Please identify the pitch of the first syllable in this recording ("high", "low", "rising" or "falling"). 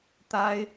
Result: high